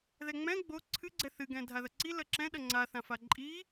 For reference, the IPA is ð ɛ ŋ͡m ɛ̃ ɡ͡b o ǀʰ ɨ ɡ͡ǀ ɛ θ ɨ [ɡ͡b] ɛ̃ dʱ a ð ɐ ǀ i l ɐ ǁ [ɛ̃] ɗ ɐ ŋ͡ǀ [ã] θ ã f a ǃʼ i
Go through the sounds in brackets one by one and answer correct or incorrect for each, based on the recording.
incorrect: ɡ, correct, incorrect: a

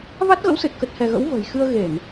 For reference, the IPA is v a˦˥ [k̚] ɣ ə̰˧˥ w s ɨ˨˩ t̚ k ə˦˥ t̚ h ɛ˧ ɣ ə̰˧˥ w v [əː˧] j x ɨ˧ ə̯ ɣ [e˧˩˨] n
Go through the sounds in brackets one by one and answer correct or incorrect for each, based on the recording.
incorrect: t̚, incorrect: ə̤ː˨˩, correct

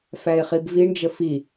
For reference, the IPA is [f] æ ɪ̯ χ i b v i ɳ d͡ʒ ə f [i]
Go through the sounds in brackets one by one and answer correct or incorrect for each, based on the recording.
correct, correct

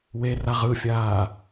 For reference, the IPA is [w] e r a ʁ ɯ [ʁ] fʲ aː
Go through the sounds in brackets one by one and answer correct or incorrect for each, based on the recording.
correct, incorrect: none

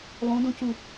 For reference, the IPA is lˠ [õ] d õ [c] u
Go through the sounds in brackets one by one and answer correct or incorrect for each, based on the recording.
correct, correct

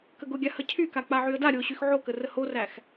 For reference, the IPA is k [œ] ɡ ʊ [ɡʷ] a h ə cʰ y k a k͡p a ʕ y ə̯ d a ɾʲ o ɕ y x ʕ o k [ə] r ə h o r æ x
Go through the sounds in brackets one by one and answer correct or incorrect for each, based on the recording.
incorrect: ə, incorrect: ɡʲ, correct

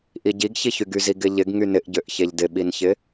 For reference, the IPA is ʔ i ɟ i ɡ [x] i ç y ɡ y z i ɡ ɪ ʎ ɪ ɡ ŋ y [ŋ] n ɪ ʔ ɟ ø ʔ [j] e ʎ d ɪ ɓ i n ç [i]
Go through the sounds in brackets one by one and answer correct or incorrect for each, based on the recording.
incorrect: ç, incorrect: none, incorrect: ç, incorrect: ɪ

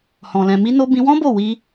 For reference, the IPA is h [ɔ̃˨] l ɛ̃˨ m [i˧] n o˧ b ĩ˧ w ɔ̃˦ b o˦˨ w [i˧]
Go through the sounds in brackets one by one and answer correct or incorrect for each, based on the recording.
correct, correct, correct

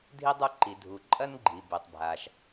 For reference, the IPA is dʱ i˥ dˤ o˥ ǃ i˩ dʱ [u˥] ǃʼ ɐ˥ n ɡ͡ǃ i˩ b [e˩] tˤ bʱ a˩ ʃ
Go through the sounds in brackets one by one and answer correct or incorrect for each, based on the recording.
incorrect: u˩, correct

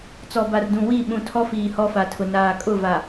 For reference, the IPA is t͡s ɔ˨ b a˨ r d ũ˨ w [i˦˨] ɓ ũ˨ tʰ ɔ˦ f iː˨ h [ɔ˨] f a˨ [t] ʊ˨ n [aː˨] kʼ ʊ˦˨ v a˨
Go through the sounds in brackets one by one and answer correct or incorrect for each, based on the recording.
correct, incorrect: ɔ˦, incorrect: tʰ, correct

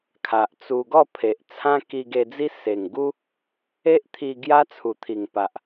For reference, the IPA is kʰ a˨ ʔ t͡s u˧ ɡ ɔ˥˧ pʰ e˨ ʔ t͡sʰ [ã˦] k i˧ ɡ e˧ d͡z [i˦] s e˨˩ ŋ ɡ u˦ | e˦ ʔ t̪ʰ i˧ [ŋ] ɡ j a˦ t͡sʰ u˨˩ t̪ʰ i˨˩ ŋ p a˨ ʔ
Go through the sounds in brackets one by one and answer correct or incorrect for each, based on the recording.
correct, correct, incorrect: none

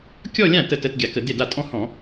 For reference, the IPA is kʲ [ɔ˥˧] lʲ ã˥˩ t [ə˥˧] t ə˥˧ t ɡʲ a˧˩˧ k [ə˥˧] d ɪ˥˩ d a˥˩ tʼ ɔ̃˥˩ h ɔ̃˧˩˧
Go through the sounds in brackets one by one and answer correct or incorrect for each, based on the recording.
correct, correct, incorrect: ə˧˩˧

